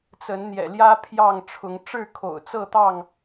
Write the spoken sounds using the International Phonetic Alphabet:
t͡sə˨˦nn̪jɛ̰˨˩ljä˦ pʰjɑ˥˨ŋʈ͡ʂʰʊ˨˦ŋ ʈ͡ʂɻ̩˥˨kʰo̰˨˩ʊ̯t͡sɤ˥˨t̪ɑ˥˨ŋ

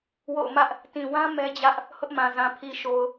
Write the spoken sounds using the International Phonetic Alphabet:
wo̰˦˨ʊ̯mä˦ʔ | tĩ˨wã˦ mɛ˦d͡ʑä˦ʔ | hʊ˦ʔmã˨ zã˨pʰi˨ ʃo˨ʊ̯

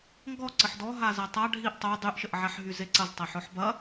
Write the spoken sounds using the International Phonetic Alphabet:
ŋɡɔ ǀəħdɔɦa zatˤa ɖʱiʔ tˤo dˤyʔʃəʔʕaħ ɦyzeǀɐz tˤɐħɔħbɐ

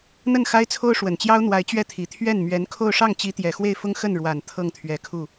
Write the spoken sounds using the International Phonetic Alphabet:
n̪ə˥˩nxa˥ɪ̯t͡sʰo˥ʊ̯ ʂwə˨˩nt͡ɕjɑ˥ʊ̯n̪wa˧˥ɪ̯ t͡ɕɥɛ˥˩t̪ʰi˨˩ t̪ʰɥɛ˥˩n mɥɛ˧˥nkʰo˥˧ʊ̯ ʂɑ˥˩ŋt͡ɕi˧˥t̪jɛ˨˩ xwe˥˩ɪ̯fʊ˥ŋ xə˥˩nɻwa˨˩n t̪ʰɤ˥˩ŋt̪ʰɥɛ˧˥kʰu˥˩

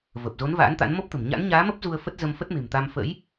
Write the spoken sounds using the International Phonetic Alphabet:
vəː˨˩p̚zo˨˦n va̰ː˧˥nt̪a̰˧˥n mo˦˥p̚t̪ə̤˨˩m ɲa̰˧˥nɲaː˨˦mə˦˥p̚ zu˧ə̯fə˦˥t̚ zə˧mfə˦˥t̚me̤˨˩mt̪a˧m fə̰˧˥j

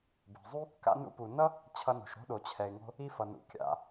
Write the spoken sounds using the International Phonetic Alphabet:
be̤˩zˤu˥ | ka̰˧nṵ˧pu˩nʌ˥ | t͡ɕʰʌ˧no̤˩ʃɾo̤˥ɗo˩ t͡ɕʰɛ˩ɪ̯ŋo̤˧ | i˧fʌ˩nṵ˩ kʲa̰˩

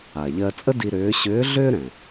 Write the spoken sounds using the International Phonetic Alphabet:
a˩ʎɜ˧t͡sʼə˥di˧ ɾʏː˧˥ ɕʏː˧˥ɮʏː˥ ɾɛ̃˩

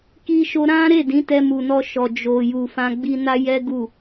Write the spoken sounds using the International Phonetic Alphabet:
ki˧ʃo˧ ɾã˦ɾe˦˨dĩ˨˦ tɛ˧mu˨nɔ˧ʃɔ˨ d͡ʒo˨ju˨ fã˧ɡ͡bi˧na˦jɛ˦ ɡu˦˨

